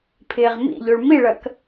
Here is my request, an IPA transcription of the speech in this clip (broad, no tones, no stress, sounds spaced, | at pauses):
pʰ ɪː ʁ m ḭ ʎ o ɭ m i ɭ ɐ k